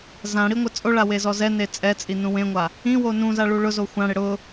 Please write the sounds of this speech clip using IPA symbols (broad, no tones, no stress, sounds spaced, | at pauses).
z ã ɽ i ŋʷ ɪ t͡sʼ o ɭ a w e z ɔ z ɛ n e t͡sʼ ɛ t͡sʼ i n ũ w ẽ ŋʷ a | ĩ w o n ũ z a ɭ u ɭ ʊ z o xʷ ã ɽ ɪ ɽ ʊ